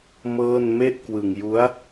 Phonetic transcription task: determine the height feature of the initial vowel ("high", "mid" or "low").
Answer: mid